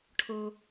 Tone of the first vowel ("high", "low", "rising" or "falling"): high